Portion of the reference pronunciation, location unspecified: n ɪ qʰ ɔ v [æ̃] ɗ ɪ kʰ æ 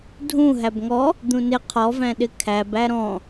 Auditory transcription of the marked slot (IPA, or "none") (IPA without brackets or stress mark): æ̃